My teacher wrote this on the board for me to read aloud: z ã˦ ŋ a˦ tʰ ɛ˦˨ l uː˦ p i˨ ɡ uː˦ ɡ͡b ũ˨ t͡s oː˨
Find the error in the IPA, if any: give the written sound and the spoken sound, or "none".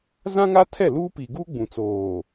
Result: none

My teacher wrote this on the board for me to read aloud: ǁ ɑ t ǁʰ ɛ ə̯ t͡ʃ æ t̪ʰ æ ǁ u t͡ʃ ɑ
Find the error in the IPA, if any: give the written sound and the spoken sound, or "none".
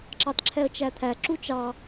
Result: none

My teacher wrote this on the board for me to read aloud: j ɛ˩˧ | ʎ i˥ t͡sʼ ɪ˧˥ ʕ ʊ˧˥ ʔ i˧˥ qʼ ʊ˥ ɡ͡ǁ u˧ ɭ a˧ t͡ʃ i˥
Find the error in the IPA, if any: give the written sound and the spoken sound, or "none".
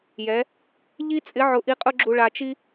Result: none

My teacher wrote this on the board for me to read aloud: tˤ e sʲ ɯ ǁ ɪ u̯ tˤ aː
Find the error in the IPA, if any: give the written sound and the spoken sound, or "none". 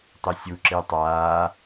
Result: ɯ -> u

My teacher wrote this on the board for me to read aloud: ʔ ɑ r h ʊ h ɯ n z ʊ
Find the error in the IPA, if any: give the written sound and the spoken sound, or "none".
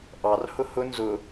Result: ɯ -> ʊ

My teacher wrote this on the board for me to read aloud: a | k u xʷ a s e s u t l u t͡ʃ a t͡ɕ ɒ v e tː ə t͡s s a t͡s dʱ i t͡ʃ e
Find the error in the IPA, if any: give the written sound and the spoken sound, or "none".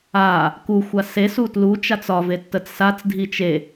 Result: t͡ɕ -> t͡s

